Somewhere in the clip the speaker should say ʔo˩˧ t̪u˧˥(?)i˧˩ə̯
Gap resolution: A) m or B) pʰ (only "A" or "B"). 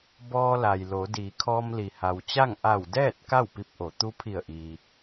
B